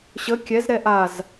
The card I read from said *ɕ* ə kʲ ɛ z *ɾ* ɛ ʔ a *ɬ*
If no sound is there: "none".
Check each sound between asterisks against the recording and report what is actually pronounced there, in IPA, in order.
ɕ, ɾ, z

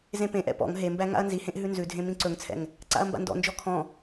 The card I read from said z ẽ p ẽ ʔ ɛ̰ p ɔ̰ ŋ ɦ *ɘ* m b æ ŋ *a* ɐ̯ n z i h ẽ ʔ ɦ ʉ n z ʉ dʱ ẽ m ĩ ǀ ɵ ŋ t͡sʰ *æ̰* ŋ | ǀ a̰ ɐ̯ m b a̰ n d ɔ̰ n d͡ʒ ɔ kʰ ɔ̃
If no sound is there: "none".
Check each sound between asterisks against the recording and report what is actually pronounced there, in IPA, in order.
e, a̰, ɛ̰

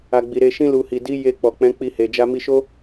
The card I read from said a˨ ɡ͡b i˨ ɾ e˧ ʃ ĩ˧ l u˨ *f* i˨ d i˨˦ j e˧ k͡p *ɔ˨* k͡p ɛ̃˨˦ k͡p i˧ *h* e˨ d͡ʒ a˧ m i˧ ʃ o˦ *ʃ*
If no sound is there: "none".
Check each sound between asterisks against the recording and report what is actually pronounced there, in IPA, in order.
h, ɔ˨, h, none

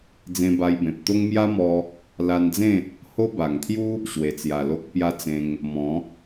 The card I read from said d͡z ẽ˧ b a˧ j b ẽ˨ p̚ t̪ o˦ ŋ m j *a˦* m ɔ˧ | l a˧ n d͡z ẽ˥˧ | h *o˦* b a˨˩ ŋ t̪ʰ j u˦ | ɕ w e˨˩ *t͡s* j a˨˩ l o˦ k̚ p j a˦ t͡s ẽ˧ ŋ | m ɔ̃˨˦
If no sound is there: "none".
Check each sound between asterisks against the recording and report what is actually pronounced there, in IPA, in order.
a˦, o˦, t͡s

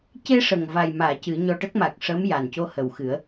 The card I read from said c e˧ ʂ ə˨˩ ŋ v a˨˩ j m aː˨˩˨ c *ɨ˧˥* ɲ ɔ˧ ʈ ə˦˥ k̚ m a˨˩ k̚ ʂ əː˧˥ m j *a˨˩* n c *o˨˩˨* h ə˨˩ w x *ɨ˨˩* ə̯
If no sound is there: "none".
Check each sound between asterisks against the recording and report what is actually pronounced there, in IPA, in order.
ɨ˨˩˦, a˨˩, o˧, ɨ˨˩˦

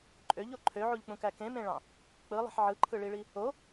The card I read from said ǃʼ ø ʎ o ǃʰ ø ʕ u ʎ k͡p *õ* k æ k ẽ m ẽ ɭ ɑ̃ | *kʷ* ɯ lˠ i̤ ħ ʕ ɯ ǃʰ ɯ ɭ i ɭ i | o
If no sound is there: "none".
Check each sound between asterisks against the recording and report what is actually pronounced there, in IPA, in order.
ũ, k͡p

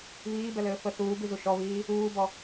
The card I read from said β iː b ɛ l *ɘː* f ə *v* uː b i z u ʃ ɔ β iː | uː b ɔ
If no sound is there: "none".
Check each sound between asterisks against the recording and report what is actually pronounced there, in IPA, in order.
ɘː, θ

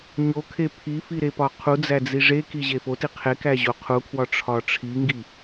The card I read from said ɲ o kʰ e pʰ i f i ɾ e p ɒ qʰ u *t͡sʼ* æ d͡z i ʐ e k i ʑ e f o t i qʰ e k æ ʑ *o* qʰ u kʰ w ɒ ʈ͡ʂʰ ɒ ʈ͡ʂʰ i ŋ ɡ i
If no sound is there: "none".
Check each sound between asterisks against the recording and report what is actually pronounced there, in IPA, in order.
d͡z, o

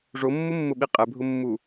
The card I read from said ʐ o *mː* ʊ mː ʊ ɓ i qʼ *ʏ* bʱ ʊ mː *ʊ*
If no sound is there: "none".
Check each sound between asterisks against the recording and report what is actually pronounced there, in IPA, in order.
mː, ɛ, u

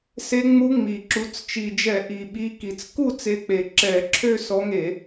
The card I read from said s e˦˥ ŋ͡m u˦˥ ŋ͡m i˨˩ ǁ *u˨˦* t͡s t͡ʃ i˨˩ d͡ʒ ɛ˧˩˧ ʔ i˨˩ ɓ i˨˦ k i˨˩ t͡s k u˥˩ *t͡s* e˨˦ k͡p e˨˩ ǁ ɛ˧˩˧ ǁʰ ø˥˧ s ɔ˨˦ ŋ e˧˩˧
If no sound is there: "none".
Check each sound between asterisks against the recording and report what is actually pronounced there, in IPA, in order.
u˨˦, t͡s

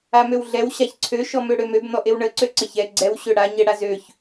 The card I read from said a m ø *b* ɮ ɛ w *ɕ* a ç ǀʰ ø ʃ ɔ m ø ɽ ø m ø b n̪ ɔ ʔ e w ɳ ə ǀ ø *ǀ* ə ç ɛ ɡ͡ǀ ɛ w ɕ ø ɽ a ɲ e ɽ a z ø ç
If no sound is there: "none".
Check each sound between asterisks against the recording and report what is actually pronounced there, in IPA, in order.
w, ɕ, ǀ

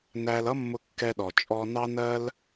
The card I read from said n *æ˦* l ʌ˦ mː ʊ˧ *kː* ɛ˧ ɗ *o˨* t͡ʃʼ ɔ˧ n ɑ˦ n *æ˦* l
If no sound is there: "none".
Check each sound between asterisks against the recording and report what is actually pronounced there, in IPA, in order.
æ˧, kː, ɔ˨, ɜ˦

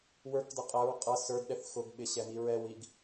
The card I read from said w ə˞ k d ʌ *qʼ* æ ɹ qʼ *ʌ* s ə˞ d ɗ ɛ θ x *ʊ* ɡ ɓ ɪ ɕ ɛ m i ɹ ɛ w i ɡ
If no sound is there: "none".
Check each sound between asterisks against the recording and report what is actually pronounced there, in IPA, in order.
qʼ, ʌ, ʊ

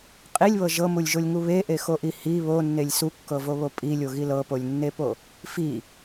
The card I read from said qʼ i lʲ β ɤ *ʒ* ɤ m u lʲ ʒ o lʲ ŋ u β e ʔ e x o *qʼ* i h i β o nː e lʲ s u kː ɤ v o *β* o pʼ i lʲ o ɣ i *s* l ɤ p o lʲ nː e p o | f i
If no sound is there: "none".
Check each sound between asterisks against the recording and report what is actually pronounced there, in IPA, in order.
ʒ, ʔ, β, none

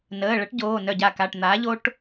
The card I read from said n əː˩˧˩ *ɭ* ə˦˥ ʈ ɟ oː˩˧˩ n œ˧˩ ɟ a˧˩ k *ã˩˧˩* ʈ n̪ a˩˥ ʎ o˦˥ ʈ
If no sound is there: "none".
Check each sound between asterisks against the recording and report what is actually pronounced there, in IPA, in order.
ɭ, a˩˧˩

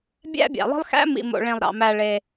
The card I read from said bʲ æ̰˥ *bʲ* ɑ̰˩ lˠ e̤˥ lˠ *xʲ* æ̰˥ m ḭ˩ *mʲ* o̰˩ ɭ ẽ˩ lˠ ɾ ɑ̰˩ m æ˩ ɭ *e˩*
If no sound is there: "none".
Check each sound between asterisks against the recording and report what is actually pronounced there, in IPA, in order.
bʲ, x, m, e˩

